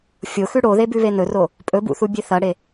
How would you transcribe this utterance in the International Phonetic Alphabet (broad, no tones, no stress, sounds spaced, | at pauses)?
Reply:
fʲ o x ʉ ɽ o ð e b ʉ β e n ɵ r o | pʼ ɵ b ṵ θ u bʲ e θ ɐ ɽ e